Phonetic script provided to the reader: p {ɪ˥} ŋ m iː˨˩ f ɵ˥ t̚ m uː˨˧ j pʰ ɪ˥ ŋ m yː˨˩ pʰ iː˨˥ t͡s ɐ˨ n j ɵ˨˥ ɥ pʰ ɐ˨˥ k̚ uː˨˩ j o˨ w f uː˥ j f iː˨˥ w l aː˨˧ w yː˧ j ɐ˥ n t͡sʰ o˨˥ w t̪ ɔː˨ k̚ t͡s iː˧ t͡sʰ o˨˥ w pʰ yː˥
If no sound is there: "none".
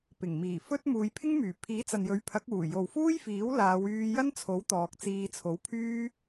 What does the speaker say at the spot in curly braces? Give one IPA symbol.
ɪ˨˩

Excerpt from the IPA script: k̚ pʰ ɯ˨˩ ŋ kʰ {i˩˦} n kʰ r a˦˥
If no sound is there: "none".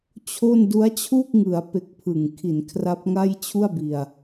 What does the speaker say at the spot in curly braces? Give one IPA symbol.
i˩˦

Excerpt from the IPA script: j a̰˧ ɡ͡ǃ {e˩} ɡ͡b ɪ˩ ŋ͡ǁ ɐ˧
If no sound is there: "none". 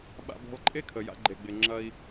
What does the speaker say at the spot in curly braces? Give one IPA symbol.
e˩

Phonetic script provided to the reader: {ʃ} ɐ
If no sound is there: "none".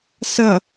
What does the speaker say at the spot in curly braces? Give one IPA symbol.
s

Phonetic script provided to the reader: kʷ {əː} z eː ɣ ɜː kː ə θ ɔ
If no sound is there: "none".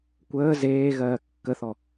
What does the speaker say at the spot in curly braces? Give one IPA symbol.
əː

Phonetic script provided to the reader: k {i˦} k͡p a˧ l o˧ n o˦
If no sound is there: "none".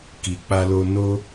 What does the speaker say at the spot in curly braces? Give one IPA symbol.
i˨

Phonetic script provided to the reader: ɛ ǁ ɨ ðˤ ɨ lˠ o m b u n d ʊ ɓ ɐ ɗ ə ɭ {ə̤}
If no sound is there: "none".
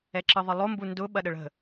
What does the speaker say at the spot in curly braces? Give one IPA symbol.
ə̤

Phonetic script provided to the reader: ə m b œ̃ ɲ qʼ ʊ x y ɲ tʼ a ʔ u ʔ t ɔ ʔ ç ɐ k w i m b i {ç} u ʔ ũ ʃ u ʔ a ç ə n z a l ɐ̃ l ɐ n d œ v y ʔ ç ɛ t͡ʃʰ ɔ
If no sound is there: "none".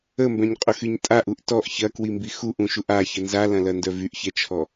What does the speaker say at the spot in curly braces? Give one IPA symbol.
x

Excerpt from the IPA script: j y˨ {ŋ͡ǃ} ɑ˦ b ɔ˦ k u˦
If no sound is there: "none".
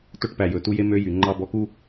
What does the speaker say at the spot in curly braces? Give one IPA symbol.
ŋ͡ǃ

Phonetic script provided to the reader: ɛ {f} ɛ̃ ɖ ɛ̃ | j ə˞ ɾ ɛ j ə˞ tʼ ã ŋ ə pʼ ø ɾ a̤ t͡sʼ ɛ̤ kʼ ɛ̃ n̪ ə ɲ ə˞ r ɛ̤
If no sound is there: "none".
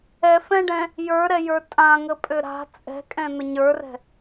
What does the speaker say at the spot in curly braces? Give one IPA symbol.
f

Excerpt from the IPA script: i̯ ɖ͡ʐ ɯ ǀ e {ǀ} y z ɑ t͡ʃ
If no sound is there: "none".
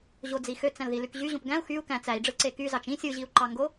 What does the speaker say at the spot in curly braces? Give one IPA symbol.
k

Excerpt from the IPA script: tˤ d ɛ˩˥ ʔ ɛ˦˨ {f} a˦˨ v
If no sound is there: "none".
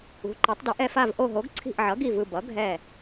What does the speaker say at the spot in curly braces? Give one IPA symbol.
f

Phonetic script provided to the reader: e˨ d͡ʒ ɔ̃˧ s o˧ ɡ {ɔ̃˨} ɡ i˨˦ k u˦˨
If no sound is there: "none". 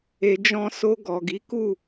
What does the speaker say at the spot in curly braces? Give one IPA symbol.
ɔ˨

